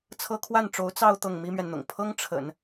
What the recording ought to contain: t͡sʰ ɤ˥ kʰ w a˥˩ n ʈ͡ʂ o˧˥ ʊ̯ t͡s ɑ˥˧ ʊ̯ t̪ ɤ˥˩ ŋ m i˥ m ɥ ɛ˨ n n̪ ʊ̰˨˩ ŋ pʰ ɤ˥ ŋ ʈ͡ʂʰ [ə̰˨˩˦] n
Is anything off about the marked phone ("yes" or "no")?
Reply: no